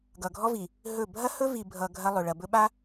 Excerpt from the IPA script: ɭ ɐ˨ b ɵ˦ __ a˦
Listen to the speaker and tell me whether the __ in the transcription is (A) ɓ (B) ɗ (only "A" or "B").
A